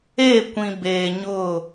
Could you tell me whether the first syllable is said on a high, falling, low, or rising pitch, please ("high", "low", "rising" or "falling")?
falling